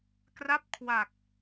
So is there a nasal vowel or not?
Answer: no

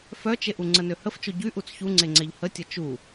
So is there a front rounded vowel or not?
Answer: yes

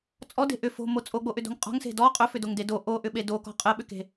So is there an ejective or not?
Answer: yes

